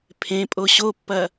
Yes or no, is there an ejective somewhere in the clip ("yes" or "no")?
yes